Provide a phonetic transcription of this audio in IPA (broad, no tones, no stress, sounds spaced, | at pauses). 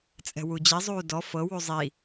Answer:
t͡sʼ ɛ̤ w u d͡ʑ i zˤ uː d ɔ f ɤ w u zˤ i